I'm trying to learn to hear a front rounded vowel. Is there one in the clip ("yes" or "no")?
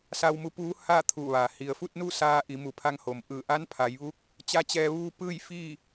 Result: no